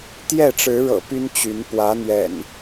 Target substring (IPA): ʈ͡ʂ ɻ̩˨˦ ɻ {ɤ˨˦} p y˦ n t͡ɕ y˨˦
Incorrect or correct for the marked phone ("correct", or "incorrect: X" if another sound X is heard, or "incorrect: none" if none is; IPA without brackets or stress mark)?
incorrect: ɤ̰˨˩